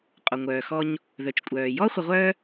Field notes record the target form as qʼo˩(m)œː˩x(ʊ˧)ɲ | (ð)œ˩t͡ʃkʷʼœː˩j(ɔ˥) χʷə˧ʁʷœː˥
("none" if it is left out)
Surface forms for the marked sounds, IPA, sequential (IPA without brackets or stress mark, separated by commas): ŋʷ, ɔ˧, ð, ɔ˥